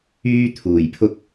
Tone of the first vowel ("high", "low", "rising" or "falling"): high